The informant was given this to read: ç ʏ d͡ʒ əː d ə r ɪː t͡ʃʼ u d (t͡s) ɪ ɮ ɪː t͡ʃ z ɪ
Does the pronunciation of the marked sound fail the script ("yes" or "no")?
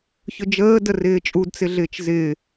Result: no